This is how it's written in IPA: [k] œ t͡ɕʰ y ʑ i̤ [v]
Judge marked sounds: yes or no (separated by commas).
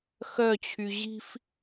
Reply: no, no